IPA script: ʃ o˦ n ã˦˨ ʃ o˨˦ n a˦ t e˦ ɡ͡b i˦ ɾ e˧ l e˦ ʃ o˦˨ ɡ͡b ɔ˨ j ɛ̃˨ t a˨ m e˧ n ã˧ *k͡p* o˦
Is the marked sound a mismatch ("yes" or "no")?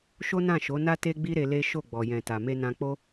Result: no